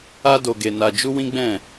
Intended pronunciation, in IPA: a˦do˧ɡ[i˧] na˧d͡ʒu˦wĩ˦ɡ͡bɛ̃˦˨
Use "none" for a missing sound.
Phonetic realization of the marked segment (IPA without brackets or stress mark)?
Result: e˧